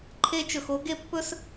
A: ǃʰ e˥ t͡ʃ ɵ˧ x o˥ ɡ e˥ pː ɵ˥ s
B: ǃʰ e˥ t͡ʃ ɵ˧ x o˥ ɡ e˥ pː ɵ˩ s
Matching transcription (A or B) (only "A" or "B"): A